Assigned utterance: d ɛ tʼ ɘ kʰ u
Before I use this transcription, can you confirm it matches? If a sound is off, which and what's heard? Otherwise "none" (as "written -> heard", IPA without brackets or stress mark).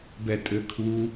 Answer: d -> b